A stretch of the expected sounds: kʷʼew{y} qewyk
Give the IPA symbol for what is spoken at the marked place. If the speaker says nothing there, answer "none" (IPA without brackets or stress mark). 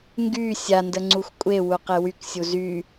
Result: u